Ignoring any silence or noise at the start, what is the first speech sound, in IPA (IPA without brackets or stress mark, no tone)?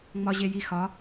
ŋ͡m